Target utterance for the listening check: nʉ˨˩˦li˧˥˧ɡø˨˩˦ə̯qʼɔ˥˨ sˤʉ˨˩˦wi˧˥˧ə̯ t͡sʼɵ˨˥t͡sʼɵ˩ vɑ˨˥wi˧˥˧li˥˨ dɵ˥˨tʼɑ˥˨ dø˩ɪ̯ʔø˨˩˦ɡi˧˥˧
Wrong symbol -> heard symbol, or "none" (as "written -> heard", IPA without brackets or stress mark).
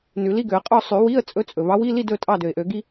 none